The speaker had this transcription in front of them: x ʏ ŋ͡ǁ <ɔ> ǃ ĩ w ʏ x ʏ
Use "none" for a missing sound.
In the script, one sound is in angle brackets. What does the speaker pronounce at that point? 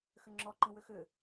ɔ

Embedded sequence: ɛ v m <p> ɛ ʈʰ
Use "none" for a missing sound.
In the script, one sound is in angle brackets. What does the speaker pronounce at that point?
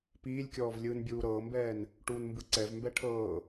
b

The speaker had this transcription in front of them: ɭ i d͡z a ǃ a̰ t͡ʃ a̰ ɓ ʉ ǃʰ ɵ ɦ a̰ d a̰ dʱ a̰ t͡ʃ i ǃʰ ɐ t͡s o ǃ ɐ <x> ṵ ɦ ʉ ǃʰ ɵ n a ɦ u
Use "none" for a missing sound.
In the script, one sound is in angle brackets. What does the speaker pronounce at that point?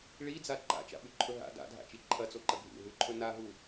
ɡʱ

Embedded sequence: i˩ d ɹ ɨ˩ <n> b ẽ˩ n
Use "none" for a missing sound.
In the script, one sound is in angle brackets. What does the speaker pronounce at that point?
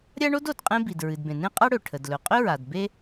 d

